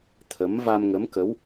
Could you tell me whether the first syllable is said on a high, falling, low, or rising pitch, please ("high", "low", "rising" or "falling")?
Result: rising